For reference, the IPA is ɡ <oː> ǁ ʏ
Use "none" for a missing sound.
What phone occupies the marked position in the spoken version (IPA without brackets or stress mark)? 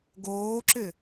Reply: oː